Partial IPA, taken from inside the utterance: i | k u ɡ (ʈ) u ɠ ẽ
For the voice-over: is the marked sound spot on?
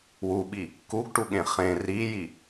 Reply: yes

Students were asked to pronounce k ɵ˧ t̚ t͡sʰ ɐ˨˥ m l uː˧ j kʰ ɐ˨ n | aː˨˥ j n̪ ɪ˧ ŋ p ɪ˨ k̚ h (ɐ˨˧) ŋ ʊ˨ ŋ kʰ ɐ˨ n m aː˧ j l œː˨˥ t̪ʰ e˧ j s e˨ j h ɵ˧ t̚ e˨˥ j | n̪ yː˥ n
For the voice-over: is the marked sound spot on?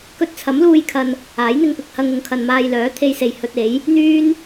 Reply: no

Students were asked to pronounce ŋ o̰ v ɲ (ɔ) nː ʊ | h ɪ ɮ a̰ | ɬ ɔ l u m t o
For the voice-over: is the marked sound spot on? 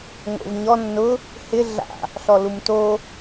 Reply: yes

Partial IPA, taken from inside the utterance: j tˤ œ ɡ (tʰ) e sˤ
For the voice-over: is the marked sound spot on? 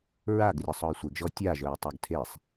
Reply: yes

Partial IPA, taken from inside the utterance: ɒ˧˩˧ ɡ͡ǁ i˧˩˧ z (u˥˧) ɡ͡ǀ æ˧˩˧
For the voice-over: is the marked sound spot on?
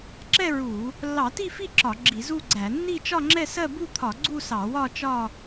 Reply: yes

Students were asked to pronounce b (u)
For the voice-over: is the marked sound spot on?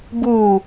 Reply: no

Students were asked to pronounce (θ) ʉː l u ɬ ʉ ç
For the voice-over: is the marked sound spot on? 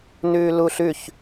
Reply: no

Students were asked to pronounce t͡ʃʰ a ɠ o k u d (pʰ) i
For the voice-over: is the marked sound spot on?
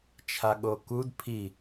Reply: yes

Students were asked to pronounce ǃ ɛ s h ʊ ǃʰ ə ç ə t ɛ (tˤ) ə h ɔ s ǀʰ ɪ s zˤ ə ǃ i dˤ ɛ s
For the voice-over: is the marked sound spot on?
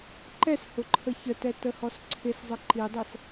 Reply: no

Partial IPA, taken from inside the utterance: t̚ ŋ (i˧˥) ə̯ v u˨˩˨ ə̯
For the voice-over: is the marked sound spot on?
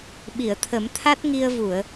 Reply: no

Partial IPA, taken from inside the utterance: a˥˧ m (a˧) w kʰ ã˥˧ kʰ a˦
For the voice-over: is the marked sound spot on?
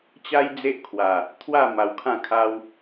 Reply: yes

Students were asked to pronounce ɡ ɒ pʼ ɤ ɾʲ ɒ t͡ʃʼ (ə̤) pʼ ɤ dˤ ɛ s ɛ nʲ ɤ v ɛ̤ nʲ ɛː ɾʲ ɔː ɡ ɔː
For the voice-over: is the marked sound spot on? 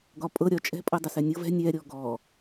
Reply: no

